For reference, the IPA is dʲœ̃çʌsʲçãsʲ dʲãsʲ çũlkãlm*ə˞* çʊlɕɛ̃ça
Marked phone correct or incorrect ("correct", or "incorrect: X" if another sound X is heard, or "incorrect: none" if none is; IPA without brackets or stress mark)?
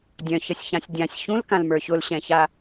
correct